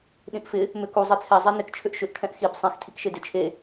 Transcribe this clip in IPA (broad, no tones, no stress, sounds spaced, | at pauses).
ɗ ĩ ʔ f ɪ | m ʏ k u zˤ e t͡sʰ ɛ zˤ ɛ n ɪ k t͡ʃʰ ʏ ʔ ʃ ʏ ʔ kʰ ɛ̃ ʔ x i b sˤ ĩ x tʰ i k ʃ e d ɪ t͡ʃʰ e